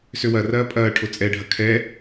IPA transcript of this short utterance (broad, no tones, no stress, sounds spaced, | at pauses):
s ø w ɐ r ɐː pʼ ɐː ʈʰ o t͡sʼ ɛ ɖʱ ɐ kʰ ɛ